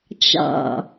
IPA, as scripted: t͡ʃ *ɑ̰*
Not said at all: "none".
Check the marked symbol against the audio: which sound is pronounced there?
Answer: ɑ̰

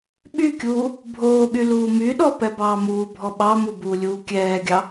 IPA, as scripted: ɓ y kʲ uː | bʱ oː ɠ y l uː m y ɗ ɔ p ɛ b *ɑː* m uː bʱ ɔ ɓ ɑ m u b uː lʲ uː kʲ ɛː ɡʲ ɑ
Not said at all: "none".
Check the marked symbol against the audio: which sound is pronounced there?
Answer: ɑː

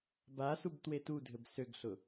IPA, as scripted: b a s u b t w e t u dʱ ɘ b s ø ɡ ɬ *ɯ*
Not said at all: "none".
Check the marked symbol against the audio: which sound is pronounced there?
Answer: ʊ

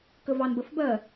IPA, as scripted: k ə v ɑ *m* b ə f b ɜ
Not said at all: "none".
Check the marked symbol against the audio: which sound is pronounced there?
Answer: n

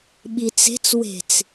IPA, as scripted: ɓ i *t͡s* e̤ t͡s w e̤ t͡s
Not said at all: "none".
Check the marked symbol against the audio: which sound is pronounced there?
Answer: t͡s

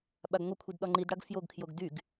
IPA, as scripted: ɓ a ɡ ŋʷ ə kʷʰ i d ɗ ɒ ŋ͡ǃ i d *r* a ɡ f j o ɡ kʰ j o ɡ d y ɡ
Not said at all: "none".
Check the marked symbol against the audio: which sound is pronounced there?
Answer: ɽ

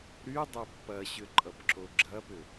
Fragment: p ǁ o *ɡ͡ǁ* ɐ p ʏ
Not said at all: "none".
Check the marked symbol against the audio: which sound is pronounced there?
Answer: ɡ͡ǁ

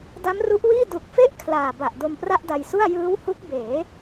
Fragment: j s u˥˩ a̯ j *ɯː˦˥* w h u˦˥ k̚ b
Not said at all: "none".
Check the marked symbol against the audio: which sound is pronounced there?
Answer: ɯː˦˥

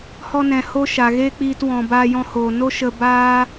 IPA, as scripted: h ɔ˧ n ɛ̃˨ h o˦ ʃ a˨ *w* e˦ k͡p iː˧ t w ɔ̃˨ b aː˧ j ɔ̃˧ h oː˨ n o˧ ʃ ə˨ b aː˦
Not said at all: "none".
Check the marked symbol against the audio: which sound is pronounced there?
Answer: ɣ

